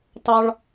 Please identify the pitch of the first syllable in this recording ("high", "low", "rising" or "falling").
high